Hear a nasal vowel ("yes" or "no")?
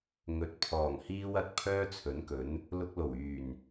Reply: no